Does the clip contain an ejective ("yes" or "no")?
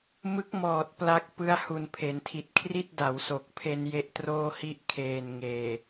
no